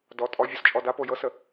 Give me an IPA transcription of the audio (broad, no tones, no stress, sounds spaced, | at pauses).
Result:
d ɔ tʼ ɔ vʲ ɔ s t͡ʃʼ ɔ d a p o j ɤ s ə